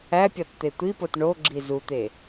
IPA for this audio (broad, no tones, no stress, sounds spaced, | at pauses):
æ pʲ ɒ t t̪ e tʷ i p o t ɳ o ɡ͡ǁ i z u t̪ e